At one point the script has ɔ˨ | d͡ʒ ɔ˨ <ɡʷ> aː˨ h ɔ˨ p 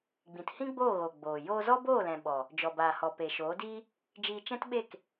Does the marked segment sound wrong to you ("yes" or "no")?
yes